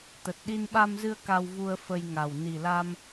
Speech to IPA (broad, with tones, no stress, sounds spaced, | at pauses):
t̪ ə˨˩ t̚ ɗ i˧ n ɓ a˧ m z ɨ˧ ə̯ k a˧ w v u˧ ə̯ f ə˧ j ŋ a˨˩ w n i˨˩ l a˧ m